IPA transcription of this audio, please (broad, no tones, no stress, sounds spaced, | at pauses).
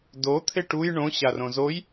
d o t̪ʰ e ʈ u j ɳ õ ɕ a r õ z o j